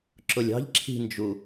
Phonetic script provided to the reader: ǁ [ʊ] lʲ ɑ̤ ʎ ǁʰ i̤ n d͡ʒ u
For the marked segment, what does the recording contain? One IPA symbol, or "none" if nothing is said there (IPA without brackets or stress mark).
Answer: ʊ